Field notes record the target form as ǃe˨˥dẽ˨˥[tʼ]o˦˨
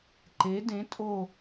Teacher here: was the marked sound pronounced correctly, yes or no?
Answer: yes